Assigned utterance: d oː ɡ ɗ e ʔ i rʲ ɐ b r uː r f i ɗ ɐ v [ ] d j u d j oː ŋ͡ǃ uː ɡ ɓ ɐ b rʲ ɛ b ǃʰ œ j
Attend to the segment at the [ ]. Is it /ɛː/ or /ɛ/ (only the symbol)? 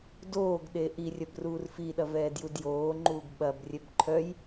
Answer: ɛː